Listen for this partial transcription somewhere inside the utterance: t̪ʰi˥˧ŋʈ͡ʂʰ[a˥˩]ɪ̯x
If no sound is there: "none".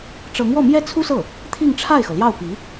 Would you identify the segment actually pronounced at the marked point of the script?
a˥˩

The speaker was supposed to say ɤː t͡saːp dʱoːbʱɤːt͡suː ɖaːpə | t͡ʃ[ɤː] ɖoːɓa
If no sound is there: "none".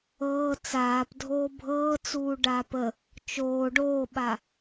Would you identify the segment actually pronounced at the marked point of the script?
oː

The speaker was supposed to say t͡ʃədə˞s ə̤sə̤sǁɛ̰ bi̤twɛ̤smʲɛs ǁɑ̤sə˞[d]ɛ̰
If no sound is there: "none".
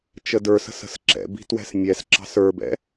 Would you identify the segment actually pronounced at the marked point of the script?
b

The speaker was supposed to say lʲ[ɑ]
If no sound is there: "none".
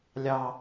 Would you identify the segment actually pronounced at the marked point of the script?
ɑ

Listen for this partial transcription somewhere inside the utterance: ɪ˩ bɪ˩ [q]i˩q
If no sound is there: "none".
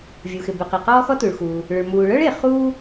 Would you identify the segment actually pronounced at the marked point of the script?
q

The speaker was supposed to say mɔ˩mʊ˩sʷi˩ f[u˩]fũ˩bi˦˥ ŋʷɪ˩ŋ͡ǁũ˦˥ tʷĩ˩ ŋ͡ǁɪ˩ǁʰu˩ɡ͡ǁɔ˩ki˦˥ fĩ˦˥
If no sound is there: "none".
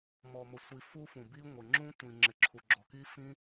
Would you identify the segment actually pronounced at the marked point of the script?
u˦˥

